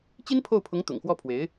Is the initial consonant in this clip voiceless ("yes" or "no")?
yes